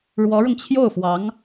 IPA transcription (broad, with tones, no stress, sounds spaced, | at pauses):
ɻ w ɔ˧˥ ɻ ʊ˧ ŋ t͡ɕʰ j o˥˩ ʊ̯ f w ɑ˧˥ ŋ